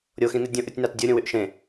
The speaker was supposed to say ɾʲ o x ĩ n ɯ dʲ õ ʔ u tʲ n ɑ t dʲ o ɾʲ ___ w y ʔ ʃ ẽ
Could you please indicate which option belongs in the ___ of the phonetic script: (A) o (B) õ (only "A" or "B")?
B